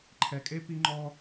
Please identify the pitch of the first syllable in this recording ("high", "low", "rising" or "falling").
low